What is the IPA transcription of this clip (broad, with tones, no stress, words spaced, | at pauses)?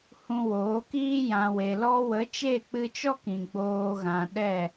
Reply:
hũ˧woː˨˦kiː˦ jã˨we˨lɔ˧wə˨˦ t͡ʃe˦˨k͡pɨ˧t͡ʃɔ˦ kĩ˨ɡ͡boː˧ɣã˨ɗɛ˦˨